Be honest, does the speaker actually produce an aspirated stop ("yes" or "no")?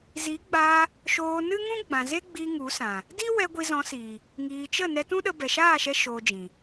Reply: no